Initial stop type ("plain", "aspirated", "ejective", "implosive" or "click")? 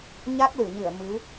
plain